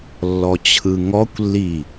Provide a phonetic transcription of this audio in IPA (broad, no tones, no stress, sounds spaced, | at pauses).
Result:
lː ɔ t͡ɕʰ ɯ ŋ ɔ kʷ lː i